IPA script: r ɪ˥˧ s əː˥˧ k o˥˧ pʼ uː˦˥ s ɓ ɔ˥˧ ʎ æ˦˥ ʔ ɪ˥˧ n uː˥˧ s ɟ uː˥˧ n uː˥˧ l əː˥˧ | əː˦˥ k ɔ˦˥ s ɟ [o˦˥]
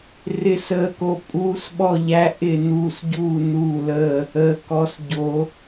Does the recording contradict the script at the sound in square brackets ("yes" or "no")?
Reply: no